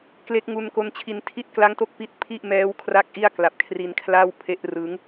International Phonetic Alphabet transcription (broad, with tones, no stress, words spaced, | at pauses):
kle˦˥k̚ŋu˧nko˦˥n t͡ɕʰi˧ntʰi˥˩t̚ kla˦˥ŋto˦˥k̚ pi˦˥t̚ pʰi˥˩ʔmɛː˦˥w kʰra˥˩k̚ʔi˥˩a̯kla˨˩p̚kʰri˧n kʰla˥˩wpʰe˦˥ʔ rɯ˦˥ŋ